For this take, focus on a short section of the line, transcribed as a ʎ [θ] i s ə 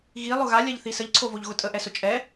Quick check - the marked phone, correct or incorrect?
correct